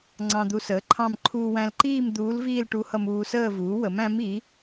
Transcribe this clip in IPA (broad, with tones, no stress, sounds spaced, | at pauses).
ŋ͡ǀ ɑ̃˧ d̪ u˧ s əː˩˥ ǃʰ ɑ̃˥˧ m ǃʰ uː˧ w æ̃˧ l ǃ iː˥˧ m d̪ uː˧˥ l v iː˥˧ l ʈ u˧˥ h ʌ˧ m uː˧ s əː˥˧ v uː˩˥ w ə˩˥ m æ̃˧˥ m i˩˥